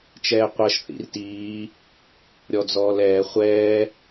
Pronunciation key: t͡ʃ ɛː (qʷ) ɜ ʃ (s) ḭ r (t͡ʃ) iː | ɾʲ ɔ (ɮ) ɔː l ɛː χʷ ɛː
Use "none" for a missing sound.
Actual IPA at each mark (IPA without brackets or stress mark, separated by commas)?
qʷ, θ, t, d͡z